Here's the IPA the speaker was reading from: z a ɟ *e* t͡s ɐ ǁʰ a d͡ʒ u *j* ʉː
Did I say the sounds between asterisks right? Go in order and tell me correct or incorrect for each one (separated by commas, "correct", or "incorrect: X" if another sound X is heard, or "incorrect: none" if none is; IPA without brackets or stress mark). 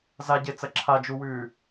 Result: correct, incorrect: w